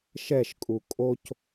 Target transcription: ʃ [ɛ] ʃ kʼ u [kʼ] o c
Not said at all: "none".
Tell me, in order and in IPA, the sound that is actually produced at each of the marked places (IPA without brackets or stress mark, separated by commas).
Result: ɛ, kʼ